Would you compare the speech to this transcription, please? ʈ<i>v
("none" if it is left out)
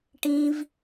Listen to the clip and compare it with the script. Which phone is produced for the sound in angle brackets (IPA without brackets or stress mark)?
ĩ